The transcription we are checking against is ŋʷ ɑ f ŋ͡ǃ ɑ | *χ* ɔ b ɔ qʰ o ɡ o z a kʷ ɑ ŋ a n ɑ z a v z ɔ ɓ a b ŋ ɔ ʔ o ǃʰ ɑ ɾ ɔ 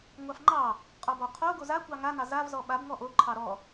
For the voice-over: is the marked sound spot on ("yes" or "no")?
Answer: no